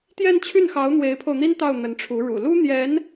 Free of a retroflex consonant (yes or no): no